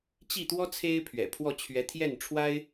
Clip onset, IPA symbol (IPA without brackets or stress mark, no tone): t͡ɕ